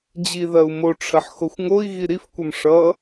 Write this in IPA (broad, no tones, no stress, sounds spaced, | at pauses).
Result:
d͡ʑ i ð ɐ u̯ m o ʈ͡ʂʰ ɐ ħ x o xʷ ŋ o i̯ ɣ i ɾ i f kʷ ʌ m ʂ ʌ